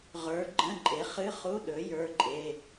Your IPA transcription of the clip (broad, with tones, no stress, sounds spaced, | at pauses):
ʁ ə˞˨˥ ɡ͡ǃ ə̃˧˥˧ ǃʼ e˨˥ χ ɨ˧˥˧ χ u˧˥˧ ɗ ɵ˨˥ j ə˞˧˥˧ ǃʼ e˧˥˧